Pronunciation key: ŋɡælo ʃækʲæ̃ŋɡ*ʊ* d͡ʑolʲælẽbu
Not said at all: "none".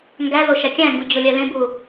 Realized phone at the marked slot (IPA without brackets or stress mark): u